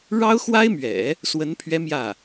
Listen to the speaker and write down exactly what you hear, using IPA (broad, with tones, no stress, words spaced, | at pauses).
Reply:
ɻɑ˥ʊ̯ xwa˥ɪ̯mɥɛ̰˨˩˦ | swə˧˥npʰɥɛ˧˥ mjä˥˩